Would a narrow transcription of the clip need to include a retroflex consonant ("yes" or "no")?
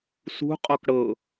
yes